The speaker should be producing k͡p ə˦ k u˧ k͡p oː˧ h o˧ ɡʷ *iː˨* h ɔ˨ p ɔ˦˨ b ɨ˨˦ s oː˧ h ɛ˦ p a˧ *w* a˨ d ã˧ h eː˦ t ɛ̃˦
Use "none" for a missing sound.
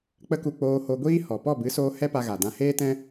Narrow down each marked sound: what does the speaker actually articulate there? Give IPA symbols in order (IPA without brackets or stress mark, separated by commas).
iː˦, ɣ